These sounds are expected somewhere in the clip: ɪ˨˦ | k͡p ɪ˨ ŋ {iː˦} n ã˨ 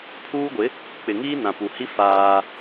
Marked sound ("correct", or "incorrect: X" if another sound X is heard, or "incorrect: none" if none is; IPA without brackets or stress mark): correct